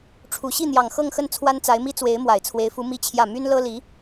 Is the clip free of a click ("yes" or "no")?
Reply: yes